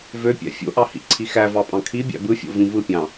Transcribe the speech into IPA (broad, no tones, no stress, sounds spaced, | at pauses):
v ø pʲ æ̰ fʲ o̰ ʔ ɑ h ḭ ǀʰ i x æ v ɑ pʼ ɑ̃ kʰ i bʲ æ̰ b ɯ fʲ o̰ v ĩ v ɯ pʲ ɑ̃